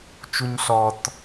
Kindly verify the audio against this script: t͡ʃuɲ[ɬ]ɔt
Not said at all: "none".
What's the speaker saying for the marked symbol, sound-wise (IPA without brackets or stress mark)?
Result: ɬ